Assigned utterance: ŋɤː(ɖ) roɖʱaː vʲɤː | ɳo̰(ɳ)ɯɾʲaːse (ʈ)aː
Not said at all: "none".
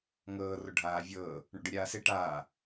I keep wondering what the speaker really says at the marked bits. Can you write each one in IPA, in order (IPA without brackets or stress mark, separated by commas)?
none, ɖ, ʈ